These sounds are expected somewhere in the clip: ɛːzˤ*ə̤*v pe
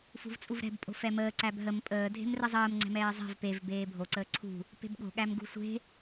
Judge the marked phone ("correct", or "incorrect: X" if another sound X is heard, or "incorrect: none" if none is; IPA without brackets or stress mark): incorrect: ɛ̤